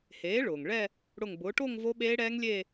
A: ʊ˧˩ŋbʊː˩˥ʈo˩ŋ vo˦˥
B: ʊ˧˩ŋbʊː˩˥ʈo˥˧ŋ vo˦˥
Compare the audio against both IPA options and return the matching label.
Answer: B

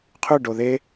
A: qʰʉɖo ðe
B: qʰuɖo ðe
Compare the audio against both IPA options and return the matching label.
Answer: A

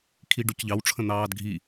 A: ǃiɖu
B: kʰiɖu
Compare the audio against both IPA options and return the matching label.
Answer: B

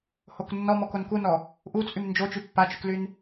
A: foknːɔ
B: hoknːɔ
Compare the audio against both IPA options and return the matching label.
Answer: B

